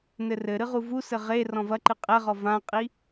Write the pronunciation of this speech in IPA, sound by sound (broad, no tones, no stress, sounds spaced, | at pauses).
n ɘ r ɘ ɾ ɨ ʁ u v u s ɘ ʁ e r ɔ̃ v ɐ ǃ ɨ qʼ ɛ ʁ ɔ v ã qʼ i